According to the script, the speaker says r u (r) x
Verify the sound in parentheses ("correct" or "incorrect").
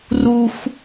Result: incorrect